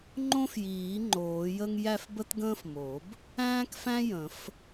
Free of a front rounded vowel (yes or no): yes